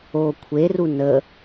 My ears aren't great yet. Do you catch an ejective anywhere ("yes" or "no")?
no